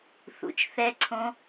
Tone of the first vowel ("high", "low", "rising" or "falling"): low